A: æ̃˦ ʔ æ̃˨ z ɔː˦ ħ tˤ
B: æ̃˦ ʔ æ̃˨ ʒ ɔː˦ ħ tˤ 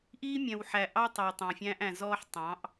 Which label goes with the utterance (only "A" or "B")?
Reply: A